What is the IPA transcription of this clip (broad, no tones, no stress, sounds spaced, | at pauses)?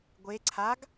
ɡʷ e ǀʰ a ɡ